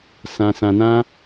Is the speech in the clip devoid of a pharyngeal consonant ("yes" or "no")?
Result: yes